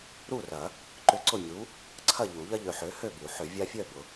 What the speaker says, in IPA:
ɾu˥˨rɐ˨˩˦ | ǃʏ˦ǀʊ˥˨mʲu˨˥ | ǀʰɐ˥˨ʎu˨˩˦ ʎɐ˦ʎø˨ħø˨˥ hø˥˨bu˨˩˦ħʏ˨˩˦ vʲa˦fʲœ˥˨ bʊ˨

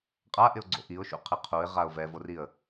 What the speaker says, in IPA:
qʼaʔɪʊ̯ɡ͡ǀo̰ ʔiʊ̯ʃṵqʰɪ qʰuɪ̯ʁaʊ̯ vɛvoriə̯

